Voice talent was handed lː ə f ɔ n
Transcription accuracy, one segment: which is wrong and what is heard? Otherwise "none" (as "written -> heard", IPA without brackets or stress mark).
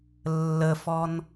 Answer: none